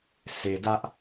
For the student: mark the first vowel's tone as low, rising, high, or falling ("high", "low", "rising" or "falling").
low